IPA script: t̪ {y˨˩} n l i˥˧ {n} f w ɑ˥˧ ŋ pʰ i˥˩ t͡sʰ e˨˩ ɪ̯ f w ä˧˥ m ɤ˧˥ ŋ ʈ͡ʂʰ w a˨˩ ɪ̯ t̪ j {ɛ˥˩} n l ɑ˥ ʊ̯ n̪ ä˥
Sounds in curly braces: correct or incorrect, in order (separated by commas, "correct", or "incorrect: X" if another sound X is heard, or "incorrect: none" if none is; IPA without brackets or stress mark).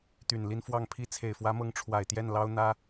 correct, correct, correct